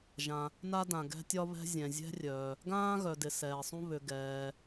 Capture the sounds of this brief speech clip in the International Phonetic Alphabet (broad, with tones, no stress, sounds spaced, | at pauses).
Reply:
ʒ ã˩ | n a˥ d ã˩ ɡ ɛ̤˥ tʲ ɒ˥ β ɛ̤˥ zʲ ɛ̃˩ zʲ ɛ̤˥ rʲ œː˩ | ɡ ãː˥ ɣ œ˩ d ɪ˩ s ɛː˩ sˤ ũ˥ β ʏ˩ ɡ ɛː˩